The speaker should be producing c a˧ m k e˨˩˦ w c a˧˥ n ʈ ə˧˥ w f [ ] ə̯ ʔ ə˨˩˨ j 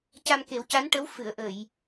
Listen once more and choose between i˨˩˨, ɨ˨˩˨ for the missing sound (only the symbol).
ɨ˨˩˨